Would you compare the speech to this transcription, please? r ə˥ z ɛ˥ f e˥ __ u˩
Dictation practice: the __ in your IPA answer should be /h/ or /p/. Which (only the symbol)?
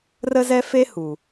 h